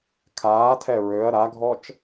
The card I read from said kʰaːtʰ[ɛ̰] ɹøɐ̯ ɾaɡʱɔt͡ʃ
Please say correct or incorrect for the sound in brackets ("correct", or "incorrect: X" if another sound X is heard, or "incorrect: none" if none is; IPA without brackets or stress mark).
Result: incorrect: ɛ